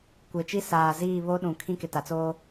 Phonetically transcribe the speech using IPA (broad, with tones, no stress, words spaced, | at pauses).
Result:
kʷe˨t͡ʃi˦saː˨ziː˦˨ βo˦ɗũ˨kʰĩ˦kɪ˨ ta˨t͡soː˦